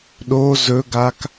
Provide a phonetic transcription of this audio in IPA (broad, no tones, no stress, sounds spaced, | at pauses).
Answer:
ɗ o z ɵ ɡ a k